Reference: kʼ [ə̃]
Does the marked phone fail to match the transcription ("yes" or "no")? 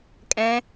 yes